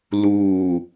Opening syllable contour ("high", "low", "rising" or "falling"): falling